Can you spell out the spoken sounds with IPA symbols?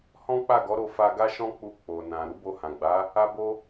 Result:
h ɔ̃˦ k͡p a˦˨ ɡ ɔ˨˦ ɾ o˧ f a˧ ɡ a˦ ʃ ɔ̃˦ k͡p u˦˨ k͡p o˨ n ã˨ ɾ u˨˦ b o˧ h ã˨ ɡ͡b a˨˦ | a˦ b o˦

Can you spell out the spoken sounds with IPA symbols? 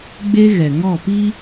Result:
ɡ͡b e˦ ɣ ɛ˨ ŋ ɔ˦˨ p i˦

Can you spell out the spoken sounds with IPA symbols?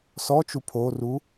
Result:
s ɔ t͡ʃ u pʰ o r u

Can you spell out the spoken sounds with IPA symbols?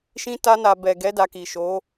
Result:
ʃ ĩ˧ t a˧ n a˨ b ɛ˨ ɡ ɛ˨˦ d a˧ k i˨ ʃ o˨˦

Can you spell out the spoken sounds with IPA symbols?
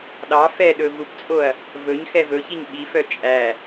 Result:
ɗ ɑ f ɛ ɗ ɵ v u p t͡sʼ o ɐ̯ | v ɵ ɲ x ɛ v ɵ ç i ɲ ɓ i f œ t͡ʃʼ æ

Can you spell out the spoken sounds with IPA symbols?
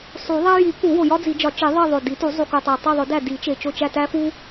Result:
sˤ u˨˩˦ ðˤ æ˥ j i˨˩˦ k u˨˩˦ w o˨˩ j ɒ˥ d͡z i˨˩˦ d͡ʒ ɒ˨˩˦ t͡ʃ i˨˩˦ ðˤ i˦˨ ðˤ o˨˩ d i˨˩˦ t u˨˩˦ zˤ u˨˩ k u˨˩ tˤ æ˨˩ tˤ u˦˨ ðˤ o˨˩˦ d æ˦˨ d i˨˩˦ t͡ʃ e˨˩ t͡ʃ o˦˨ t͡ʃ æ˦˨ t æ˥ f u˥

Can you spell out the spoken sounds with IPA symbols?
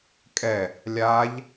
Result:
kʼ ɛ | lʲ a ʎ

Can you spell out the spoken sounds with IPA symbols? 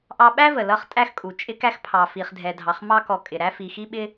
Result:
ʔ ɑ˧ ɓ æ˥ v ə˩ l ʌ˧ χ tʼ æ˧ x kʼ u˩ t͡ʃʼ ɪ˧ k æ˧ x pʰ ɑ˩ f i˩ χ dʱ ɛ˩ dʱ ɑ˩ χ m ɑ˧ k ɔ˩ kʼ ɪ˩ ɾ æ˧ f i˩ x i˧ ɓ ɪ˧

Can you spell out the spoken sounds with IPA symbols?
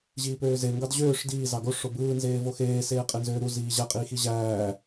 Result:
ʑ iː p øː z e ŋ ɡ ɑ d ʑ øː ʂ d iː z ɑ ɡ o ʂ o b ɯː n z eː v o x eː s eː qʼ e n z øː ɾ u z iː ʑ æ qʼ iː x i ʑ æː

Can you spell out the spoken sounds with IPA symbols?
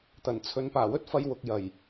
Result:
t̪ ɐ˨˩ n t͡sʰ ɵ˨˧ n p aː˨˩ w ɵ˥ t̚ f ɐ˧ j w ʊ˨ k̚ j ɐ˨˩ j

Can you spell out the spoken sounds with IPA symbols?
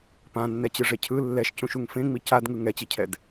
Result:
p ã nː ɛ t͡ɕ ɯ ʐ e cʰ ɯ lː ɛ ʃ c ũ ʃ u ŋ f ẽ ŋ͡m i c a d ŋ ɯ ŋ ɛ t͡ɕ i cʰ ɛ d

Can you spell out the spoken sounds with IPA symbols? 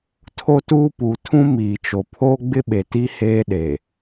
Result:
tʰ o˦ t uː˦ p uː˨ tʰ ũ˦ m iː˨ t͡ʃ o˨ pʰ oː˦ ɡ͡b ɪ˦ ɓ e˨ t i˦ h eː˦ ɗ eː˨

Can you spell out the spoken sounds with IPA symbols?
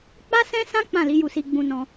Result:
k͡p a˦ s ɛ̃˦ s ã˦ k͡p ã˦˨ l i˨˦ j u˧ s i˧ ɡ͡b ũ˧ n ɔ̃˧

